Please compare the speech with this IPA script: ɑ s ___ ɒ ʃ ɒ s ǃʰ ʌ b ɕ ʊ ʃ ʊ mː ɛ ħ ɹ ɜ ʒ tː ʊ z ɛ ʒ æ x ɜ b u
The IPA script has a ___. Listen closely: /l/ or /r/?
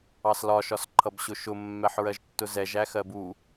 l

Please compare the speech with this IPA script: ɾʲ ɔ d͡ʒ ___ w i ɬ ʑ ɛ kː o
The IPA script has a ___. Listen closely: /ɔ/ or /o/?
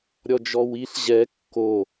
ɔ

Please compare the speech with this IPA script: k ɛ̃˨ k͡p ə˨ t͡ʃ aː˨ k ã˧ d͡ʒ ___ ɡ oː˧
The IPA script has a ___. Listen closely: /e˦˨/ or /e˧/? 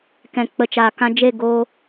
e˦˨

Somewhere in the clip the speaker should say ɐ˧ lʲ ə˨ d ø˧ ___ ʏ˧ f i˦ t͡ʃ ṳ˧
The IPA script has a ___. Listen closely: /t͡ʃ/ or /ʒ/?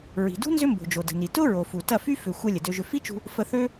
ʒ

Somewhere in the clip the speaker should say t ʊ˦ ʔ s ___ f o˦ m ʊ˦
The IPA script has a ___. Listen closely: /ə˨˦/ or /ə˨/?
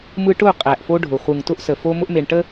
ə˨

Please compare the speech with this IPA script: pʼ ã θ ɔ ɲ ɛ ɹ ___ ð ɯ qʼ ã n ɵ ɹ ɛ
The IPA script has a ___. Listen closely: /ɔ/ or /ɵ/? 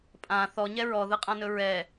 ɔ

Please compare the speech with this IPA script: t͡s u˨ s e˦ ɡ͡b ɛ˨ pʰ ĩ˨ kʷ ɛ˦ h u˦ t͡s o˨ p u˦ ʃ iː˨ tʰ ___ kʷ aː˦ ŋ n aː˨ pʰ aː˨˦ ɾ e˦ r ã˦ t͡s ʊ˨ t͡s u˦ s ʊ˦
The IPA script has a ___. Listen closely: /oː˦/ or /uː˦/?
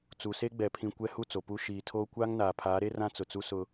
oː˦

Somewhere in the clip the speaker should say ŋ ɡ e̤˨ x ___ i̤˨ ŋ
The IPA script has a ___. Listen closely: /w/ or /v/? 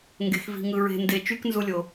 v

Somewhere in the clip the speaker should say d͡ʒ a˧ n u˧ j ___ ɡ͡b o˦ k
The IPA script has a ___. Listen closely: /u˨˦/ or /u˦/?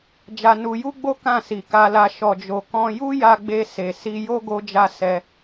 u˦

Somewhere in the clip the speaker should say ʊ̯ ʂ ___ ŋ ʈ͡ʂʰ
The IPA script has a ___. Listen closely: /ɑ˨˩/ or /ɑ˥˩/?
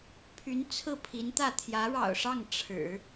ɑ˥˩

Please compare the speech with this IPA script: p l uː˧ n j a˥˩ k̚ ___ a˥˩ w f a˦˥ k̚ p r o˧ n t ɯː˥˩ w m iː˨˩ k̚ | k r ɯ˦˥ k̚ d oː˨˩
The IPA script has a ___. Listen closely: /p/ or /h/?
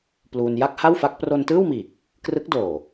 h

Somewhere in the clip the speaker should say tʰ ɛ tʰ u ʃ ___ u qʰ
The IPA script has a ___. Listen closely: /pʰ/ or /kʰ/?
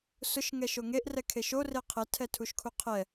kʰ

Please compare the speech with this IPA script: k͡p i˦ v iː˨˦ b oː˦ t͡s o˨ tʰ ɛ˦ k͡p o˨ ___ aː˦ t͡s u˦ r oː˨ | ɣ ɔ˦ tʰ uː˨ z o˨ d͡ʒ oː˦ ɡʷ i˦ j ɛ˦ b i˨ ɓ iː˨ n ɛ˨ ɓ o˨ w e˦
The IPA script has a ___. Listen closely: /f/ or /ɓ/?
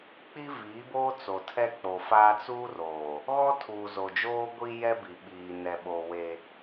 f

